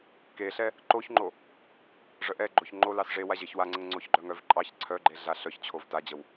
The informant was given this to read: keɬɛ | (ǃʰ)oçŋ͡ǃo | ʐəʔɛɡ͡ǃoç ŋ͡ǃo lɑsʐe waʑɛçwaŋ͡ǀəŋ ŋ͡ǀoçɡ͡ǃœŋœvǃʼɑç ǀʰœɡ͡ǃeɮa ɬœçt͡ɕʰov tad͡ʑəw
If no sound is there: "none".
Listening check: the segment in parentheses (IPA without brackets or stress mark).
ǃ